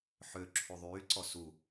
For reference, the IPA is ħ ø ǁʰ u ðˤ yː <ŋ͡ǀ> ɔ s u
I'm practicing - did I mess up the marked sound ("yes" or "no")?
yes